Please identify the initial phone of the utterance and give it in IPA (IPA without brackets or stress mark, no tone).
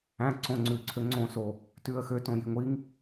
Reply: æ̃